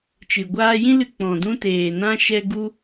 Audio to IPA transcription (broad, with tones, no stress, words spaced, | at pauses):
t͡ʃɨ˨ɡʷaː˧jĩ˦lɨ˧ k͡pɔ̃˨dũ˧teː˨nã˧ ʃɛ˦ ɡu˦